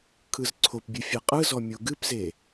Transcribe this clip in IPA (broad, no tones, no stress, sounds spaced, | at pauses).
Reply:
kʰ ɯ z ǀʰ o p bʲ ɨ fʲ e qʼ ɯ z ɔ mʲ o ɡ ɨ p z e